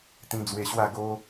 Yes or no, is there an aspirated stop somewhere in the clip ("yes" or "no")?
no